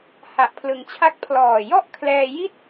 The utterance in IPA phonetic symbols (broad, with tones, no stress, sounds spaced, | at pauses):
h a˨˩ ʔ pʰ l ɯ˩˦ ŋ t͡ɕʰ a˦˥ k̚ pʰ l ɔː˨˩ j ɔ˥˩ ʔ kʰ l ɛː˧ j i˥˩ t̚